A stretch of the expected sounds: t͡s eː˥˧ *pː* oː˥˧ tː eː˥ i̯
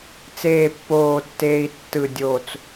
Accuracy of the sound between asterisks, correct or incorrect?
correct